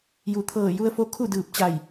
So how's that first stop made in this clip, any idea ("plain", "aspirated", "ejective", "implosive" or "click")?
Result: aspirated